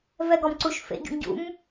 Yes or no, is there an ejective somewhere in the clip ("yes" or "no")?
no